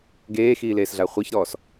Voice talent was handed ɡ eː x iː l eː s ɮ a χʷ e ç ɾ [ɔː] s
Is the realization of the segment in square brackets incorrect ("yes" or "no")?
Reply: no